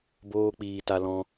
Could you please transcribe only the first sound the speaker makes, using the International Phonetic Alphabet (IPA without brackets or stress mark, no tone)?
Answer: b